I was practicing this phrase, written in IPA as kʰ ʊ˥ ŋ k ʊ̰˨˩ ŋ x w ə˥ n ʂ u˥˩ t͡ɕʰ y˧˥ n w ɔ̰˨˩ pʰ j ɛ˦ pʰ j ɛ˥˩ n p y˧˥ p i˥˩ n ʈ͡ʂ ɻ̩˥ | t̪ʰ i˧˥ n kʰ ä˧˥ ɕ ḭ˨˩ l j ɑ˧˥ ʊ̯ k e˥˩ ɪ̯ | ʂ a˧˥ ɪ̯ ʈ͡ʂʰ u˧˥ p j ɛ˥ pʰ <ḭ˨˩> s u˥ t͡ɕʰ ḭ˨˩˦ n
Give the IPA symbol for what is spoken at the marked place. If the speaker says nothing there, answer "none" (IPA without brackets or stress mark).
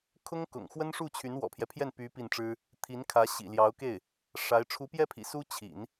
ḭ˨˩